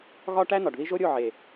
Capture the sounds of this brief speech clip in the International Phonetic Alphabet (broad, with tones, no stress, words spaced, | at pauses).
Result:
ɣɒ˦ ʈæ˦nɒ˨ɖði˦ ʒo˦ɾʲo˦˨ ʕe˨